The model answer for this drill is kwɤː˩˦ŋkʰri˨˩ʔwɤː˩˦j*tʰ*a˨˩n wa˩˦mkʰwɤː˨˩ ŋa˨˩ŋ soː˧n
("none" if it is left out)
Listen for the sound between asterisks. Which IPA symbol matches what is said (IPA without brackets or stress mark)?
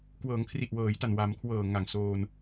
t